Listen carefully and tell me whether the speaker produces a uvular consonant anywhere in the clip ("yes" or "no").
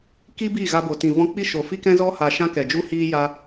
no